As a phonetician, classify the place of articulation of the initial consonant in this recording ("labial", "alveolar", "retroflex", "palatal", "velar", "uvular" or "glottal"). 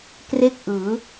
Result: velar